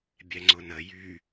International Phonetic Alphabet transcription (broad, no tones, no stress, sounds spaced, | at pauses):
bʲ ɛ ŋ͡ǀ ʊ n ə j y